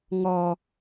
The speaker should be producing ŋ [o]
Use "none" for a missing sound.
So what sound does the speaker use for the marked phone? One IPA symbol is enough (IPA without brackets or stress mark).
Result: ɔ